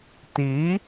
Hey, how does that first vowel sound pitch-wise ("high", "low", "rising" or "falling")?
rising